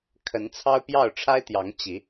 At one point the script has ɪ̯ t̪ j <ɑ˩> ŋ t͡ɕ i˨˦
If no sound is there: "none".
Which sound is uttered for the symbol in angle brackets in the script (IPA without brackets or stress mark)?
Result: ɑ˨˦